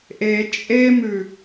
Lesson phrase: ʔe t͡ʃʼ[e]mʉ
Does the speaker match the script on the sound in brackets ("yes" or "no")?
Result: yes